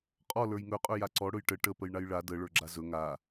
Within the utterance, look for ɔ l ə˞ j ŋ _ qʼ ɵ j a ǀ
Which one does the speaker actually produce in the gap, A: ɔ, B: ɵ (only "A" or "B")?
B